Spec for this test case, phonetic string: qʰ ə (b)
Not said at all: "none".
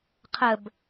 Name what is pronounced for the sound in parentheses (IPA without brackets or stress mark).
b